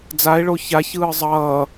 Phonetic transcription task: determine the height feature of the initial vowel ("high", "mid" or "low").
low